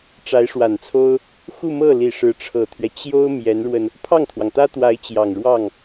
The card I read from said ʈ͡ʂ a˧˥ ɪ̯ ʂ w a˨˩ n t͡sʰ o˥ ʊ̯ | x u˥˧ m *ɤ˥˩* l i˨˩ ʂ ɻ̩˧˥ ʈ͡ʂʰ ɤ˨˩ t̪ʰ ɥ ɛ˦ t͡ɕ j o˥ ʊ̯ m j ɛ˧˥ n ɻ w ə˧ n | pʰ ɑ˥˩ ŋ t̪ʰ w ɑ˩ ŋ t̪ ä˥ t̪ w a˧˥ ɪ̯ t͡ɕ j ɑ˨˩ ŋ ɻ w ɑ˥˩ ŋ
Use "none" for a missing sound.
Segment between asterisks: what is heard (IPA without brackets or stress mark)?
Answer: ɤ˥˩